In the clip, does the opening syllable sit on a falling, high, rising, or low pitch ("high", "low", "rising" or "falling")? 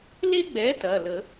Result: high